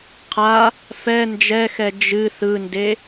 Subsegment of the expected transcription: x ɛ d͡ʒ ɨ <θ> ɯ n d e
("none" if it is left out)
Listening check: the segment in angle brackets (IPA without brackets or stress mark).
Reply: θ